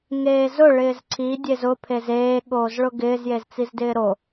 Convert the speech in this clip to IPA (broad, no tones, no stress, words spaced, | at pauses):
ŋeːzʊ ɭɪːzǀʰi dʲezʊ pʰezeː ɠoːzɭʊɡɪːz jezt͡sizdɪːɾo